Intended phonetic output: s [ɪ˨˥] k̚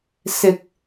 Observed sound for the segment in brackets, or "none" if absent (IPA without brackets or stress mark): ɪ˨